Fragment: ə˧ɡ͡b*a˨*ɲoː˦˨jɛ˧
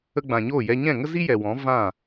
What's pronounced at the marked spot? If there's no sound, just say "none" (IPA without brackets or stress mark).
ã˨